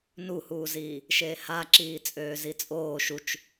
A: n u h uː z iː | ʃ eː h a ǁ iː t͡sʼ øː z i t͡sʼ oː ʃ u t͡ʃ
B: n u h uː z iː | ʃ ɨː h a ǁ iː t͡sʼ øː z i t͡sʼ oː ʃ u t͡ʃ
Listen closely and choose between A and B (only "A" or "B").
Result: A